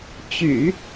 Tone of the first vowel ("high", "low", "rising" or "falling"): low